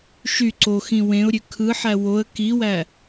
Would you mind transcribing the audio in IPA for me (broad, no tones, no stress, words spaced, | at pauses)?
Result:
ʃy ǀoxĩ wẽʊ̯ɾʲø kʰɯħæ woə̯ kiwæ